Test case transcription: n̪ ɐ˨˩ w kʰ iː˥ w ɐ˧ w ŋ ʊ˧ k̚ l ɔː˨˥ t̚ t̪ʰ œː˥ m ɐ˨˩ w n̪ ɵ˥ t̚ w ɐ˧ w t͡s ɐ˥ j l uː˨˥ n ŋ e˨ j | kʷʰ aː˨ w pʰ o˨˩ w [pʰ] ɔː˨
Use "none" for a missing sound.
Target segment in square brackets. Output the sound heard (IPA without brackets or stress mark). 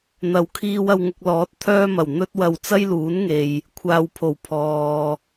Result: pʰ